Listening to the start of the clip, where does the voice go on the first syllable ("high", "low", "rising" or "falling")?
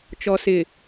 low